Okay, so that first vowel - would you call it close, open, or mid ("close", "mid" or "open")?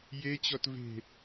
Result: mid